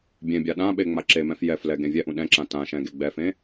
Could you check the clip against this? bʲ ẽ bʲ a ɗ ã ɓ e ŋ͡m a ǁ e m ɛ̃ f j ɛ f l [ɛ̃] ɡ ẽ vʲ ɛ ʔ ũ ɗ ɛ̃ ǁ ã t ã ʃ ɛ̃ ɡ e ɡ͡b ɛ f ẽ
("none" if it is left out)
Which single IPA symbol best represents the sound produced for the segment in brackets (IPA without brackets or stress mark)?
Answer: ɛ